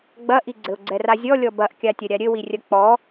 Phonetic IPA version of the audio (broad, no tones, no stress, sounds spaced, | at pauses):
ɡ͡b ɐ ʔ i ɡ͡ǀ ɘ ʊ̯ ɡ͡ǀ ɛ r a zʲ ɔ lʲ ɔ b ɐ ʔ kʲ a tʲ ɐ ɾʲ a ɾʲ ɘ w i rʲ ɐ k͡p ɔ